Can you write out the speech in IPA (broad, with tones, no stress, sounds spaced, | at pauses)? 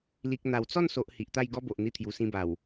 l i˨ k̚ n̪ a˨˩ w t͡s ɔ˥˧ n s o˨ ʔ h i˨ ʔ t̪ a˥˧ j ɡ ɔ˦ b o˨ ʔ n̪ i˧ t̪ʰ j u˨˩ s ĩ˧ b a˨˩ w